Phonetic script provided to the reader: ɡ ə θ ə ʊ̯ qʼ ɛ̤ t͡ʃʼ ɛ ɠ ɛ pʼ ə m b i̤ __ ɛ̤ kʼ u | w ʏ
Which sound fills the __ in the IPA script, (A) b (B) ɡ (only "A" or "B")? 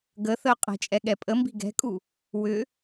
B